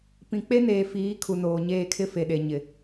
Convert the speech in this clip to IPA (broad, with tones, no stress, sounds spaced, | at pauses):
p ĩ˨ k͡p e˦ n eː˨ f iː˨˦ kʰ u˨ n oː˨ ɲ eː˦˨ kʰ ɪ˦ f e˨ ɗ e˨ ɲ ɪ˨